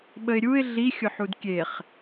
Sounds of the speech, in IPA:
ɓəɪ̯ɾʲuɪ̯ ɮi xʲʊħudkʲeχ

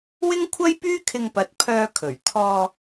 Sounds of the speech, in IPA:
wɪ˥ŋkʷʰɐ˥jpyː˥ kʰɪ˧ŋpɐ˨˥t̚ pʰœː˧kʰɵ˨˩ɥ t̪ʰɔː˧

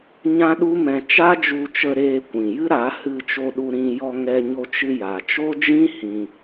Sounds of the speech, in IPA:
ɲã˦ɗu˦mɛ̃˧ t͡ʃa˦d͡ʒu˧t͡ʃə˧ ɾeː˧kʷĩ˨jɨ˦ ɾa˨˦ hɨ˧t͡ʃo˧ɗu˧ɾĩ˧ jɔ˧ŋɛ˧ɲo˧ t͡ʃɨ˧ja˨t͡ʃo˦d͡ʒĩ˦ hĩ˧

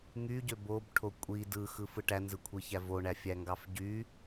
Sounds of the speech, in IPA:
ŋyɟø bobʈʰo kʷʼi dɯxɯfɯ ʈænzɯkʷʰiçæ voɳæfʲæŋɡɑf ɟy

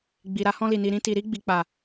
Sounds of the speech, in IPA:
ɡ͡bi˨ɾa˧hɔ̃˧li˨ ni˨ɾĩ˧ti˨ ɾi˧ ɡ͡bi˨k͡pa˨

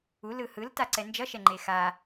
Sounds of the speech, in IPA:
u lɯhɯl taǀɛnd͡ʒʌʃɛ ŋ͡ǃexa

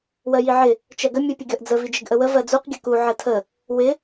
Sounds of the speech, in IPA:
wɜjiʕɪ | t͡ʃɜɡə mʲupʲəɡʲɔʔd͡zə vid͡ʒɪɡʔəwə vɜd͡zuq ɡʲəku ʕɜtʰə | wɪ

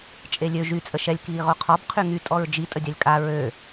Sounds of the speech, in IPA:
t͡ʃʼelʲø ʒy t͡sʼəʃɛlʲ kiːʁoqʰɔb qʰyŋy tʼɔɹd͡ʒi tʼədʲalʲkʼa ɹø

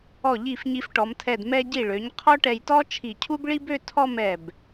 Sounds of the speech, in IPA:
ɔ˧˩ʎi˧˩f ɲi˧fʈɔ˩˧mtʰɛ˧˩d mɛ˧ɟi˧˩ɭø˩˧ɲ qʰɔ˥ ʈɛ˧jtɔ˥t͡ʃʰi˧˩cʰu˥b ɭi˥bø˥˧ tʰɔ˥˧mɛ˧˩b

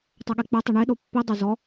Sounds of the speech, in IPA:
tˤoɠek͡pɛtˤi ɳeɗo pːidˤo zɔ

